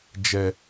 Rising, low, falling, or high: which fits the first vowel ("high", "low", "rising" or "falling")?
low